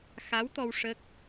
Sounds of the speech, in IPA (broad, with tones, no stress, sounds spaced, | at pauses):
x a˧˥ w t̪ ɔ˧ w ʂ ə˦˥ k̚